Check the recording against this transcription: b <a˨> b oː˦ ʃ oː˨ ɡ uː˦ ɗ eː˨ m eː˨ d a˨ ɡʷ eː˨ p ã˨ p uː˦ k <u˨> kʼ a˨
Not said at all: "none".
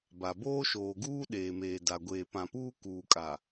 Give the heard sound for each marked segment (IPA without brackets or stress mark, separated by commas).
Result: a˨, uː˨